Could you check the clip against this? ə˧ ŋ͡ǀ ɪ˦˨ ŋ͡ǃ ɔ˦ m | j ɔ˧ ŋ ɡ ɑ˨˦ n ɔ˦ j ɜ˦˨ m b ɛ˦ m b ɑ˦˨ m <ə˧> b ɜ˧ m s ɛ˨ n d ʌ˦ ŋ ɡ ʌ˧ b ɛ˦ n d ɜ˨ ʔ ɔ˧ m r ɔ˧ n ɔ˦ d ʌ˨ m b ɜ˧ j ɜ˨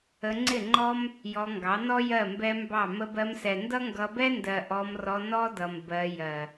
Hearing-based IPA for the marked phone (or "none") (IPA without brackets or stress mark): ə˧